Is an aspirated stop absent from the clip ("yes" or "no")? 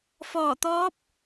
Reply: yes